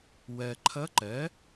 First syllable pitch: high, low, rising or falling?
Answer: low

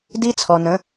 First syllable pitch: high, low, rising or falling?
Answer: high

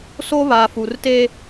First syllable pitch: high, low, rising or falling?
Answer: high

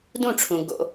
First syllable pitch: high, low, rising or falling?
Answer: falling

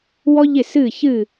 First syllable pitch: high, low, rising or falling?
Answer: high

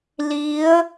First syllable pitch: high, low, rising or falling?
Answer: rising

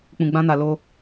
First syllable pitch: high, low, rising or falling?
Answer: low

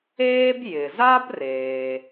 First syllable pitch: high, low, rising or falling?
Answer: high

